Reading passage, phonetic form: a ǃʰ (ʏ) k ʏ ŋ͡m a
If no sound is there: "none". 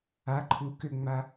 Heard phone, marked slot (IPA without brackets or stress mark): u